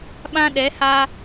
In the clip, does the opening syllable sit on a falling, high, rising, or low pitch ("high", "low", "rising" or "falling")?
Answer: high